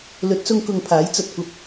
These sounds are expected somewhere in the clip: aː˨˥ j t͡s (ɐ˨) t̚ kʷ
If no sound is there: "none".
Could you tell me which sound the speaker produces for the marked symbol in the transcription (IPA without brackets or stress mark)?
ɐ˨